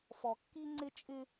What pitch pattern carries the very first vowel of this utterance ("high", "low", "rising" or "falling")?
low